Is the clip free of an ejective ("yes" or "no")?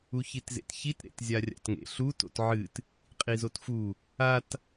no